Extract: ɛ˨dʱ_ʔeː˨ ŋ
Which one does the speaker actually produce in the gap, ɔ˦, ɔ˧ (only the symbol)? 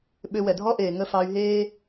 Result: ɔ˦